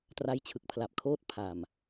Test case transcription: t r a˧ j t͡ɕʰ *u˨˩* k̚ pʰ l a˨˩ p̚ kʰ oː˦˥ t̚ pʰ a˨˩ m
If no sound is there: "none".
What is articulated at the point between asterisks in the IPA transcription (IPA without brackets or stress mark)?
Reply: ɯ˨˩